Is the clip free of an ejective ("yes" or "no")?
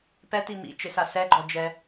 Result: yes